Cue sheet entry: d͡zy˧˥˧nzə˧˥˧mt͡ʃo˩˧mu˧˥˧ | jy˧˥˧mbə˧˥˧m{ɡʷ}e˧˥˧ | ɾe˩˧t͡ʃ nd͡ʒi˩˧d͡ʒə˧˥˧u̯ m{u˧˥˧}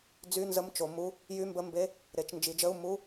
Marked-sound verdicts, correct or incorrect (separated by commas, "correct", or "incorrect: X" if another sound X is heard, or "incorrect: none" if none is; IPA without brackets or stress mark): incorrect: b, correct